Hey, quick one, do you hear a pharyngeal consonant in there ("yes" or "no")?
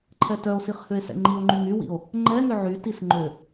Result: yes